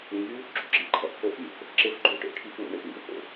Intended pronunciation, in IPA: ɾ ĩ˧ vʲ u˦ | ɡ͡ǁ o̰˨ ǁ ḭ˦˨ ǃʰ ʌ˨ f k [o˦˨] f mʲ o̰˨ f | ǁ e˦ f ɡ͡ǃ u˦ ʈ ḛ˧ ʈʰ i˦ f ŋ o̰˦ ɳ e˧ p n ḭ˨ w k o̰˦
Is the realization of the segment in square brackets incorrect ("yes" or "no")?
no